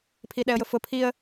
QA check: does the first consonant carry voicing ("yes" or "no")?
no